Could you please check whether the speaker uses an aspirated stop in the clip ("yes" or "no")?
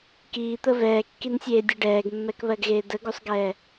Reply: no